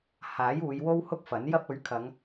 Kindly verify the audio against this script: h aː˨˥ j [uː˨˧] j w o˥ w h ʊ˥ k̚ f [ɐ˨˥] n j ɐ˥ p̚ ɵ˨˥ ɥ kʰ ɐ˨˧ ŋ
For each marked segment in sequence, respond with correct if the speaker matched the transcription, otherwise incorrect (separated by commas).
correct, correct